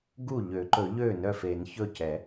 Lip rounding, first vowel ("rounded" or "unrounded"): rounded